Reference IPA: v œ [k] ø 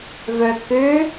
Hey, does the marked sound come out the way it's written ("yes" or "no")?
yes